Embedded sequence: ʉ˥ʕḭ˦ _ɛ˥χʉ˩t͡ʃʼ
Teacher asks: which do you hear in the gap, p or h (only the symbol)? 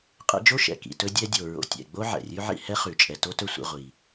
h